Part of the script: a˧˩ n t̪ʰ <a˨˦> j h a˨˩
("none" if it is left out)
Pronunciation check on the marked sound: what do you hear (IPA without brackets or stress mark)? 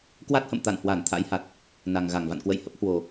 a̰˧˥